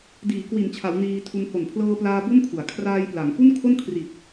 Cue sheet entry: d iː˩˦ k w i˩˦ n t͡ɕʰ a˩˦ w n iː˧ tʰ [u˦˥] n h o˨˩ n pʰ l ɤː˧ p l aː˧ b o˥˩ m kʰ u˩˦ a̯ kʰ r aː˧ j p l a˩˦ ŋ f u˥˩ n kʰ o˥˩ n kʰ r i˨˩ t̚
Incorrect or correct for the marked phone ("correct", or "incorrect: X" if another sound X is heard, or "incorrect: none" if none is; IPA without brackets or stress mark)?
incorrect: u˧